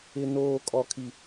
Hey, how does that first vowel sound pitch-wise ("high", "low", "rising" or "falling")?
high